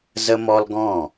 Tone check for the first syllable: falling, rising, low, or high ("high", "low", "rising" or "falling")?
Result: high